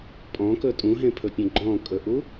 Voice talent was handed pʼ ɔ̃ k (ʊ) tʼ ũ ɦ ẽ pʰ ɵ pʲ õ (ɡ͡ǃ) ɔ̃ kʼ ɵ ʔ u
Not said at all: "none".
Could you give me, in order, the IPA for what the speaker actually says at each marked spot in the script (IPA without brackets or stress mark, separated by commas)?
ɵ, ɡ͡ǃ